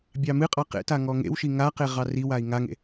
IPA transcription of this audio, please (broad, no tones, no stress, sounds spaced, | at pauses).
bʲ ɑ m ɨ qʼ ɑ q ḛ t a ŋ ɔ ŋ ḛ w ʃ i ŋ a q e ʁ ɑ r i w a i̯ ŋ a ŋ ḛ